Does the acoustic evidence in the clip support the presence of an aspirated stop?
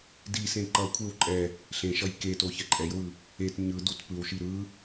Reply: yes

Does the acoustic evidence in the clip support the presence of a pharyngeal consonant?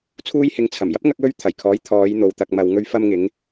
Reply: no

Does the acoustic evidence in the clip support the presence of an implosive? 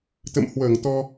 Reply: no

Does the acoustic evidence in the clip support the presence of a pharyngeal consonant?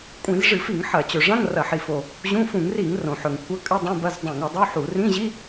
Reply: yes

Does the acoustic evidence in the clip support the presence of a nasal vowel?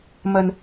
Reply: no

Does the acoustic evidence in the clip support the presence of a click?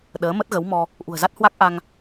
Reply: no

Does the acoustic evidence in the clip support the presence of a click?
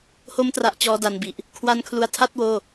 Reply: no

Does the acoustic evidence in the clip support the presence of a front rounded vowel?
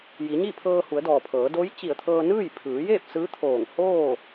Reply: no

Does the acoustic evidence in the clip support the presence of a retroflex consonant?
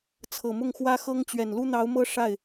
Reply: yes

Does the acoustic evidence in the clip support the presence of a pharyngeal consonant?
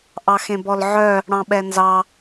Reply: yes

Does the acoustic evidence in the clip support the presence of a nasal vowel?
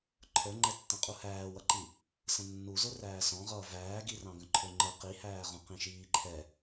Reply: yes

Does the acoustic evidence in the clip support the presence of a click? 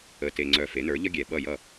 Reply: yes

